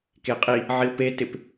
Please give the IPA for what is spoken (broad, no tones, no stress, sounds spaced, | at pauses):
k e qʼ i | ʕ i ʊ̯ p e t ɪ p